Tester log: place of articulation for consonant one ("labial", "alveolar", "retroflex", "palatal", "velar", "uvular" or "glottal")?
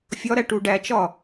labial